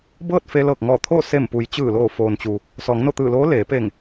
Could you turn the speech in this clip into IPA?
bɤː˥˨t̚ fe˧lɤː˧˩k̚ŋɔː˧˩t̪ʰoː˥˨ se˧˩mpu˩˧j t͡ɕɯː˧˩loː˧˩foː˩nt͡ɕu˩ | sɔː˩˧ŋno˥˨t̪ɯː˧˩loː˧˥ leː˩˧pe˧˩ŋ

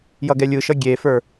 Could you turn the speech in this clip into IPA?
jʌɡɛlʲɯʃʌ ɡʲefə˞

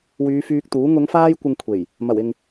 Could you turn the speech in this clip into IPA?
wyː˨˧fyː˧k̚t̪uː˨˥ ŋʊ˨˧ŋfaː˧jkʷɪ˨ŋ kʷʰe˨˩j | mɐ˨˩wɪ˨ŋ

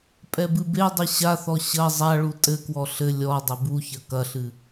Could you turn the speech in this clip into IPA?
pʼɛbɨbedˤɨ ɕaθɔ ɕɐ zˤaɭu tʼɘkwɔ ɬɘ lʲɔ dˤɐbuçɐ kɐɬɨ

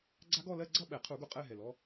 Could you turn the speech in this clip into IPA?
ɡ͡ǀa˦˥ɡɔ˥˧lɜ˥˧ ɡ͡ǀɐ˥˧ɓɛ˨˩˦qʰu˨˩˦ɡu˩ qʼɛ˥˧ɦɛ˩l ɔ˥˧

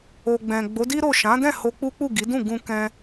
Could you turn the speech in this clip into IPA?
o˨ɡ͡bɛ̃˨ɡ͡bo˨˦ di˦ɾo˦˨ ʃã˨˦dɛ̃˦˨ ho˧k͡pu˦k͡pu˦˨ ɡi˨˦dũ˦˨ ɡũ˧kɛ̃˧

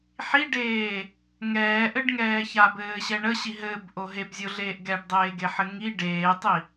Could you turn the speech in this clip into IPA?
ħiɖeː | ŋɛːʔɘɖŋɛː çabɘːɕɛ ɳəɕi ɦɘːbʔo ɦebzʲoɮeːʔ ɡɛɖdˤeːɡeħɘ ŋi ɖeːtˤi

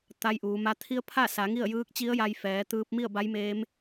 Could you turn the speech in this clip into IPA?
t̪a˧˥jʔuː˩˧ma˧˥ t̪ʰi˧˥ə̯pʰa˥˨ sa˩˧ŋi˥˨ə̯jɯː˧˥k̚ t͡ɕi˧˥ə̯ja˧jfɛː˩˧ t̪ɯː˧p̚mi˥˨ə̯ ba˧˥jmeː˧˥m

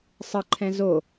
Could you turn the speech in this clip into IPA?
sˤəǃʰɛ̃ zo

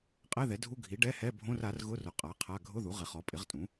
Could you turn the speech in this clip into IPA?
qʼɛ˧˥˧ðɛ˩˥dʱu˧˥˧ɡʱi˩˥ ɖɛ˧˥˧hɛ˧˥˧ bʱõ˧˥˧ra˩˥rɣʊ˧˥˧rʊ˩˥ qʼa˩˥ qʰa˧˥˧ ɡʱʊ˧˥˧ðu˩˥ ʁɪ˩˥χɔ˩˥pʼɪ˩˥ʁtʼũ˩˥

